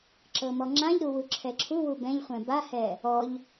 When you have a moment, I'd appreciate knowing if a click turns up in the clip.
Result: yes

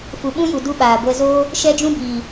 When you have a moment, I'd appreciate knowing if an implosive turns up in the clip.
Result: yes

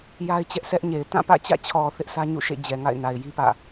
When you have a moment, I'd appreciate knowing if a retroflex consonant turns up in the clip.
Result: no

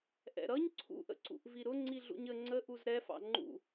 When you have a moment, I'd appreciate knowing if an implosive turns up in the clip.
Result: no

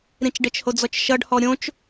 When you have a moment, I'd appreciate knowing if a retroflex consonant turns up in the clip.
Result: yes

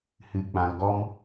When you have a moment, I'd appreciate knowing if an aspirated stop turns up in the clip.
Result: no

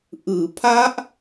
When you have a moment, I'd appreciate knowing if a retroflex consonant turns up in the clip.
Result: no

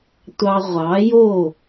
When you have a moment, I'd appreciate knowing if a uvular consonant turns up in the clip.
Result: yes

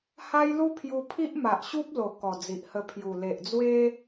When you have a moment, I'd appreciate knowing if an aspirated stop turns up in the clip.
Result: yes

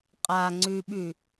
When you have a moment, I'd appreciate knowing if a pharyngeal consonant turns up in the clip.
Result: no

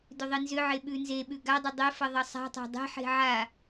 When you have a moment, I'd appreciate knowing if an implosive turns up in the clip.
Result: yes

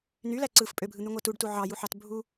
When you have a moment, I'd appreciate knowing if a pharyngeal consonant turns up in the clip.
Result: yes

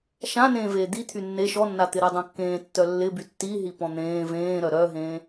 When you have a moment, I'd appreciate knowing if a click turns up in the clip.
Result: no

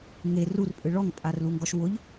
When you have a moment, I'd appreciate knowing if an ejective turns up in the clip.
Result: yes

